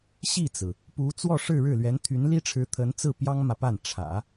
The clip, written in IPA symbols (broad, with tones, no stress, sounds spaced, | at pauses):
ɕ i˥˩ t͡s ɹ̩˩ | p u˧˥ t͡s w ɔ˥˧ ʂ ɻ̩˥˧ ɻ ɻ̩˥˩ l ɥ ɛ˧˥ n t̪ʰ y˧˥ n l i˥ ʈ͡ʂʰ ɻ̩˧˥ t̪ʰ ə˧˥ n t͡s ɹ̩˥˩ p j ɑ˥ ŋ m ä˨ p a˥˩ n ʈ͡ʂʰ ä̰˨˩˦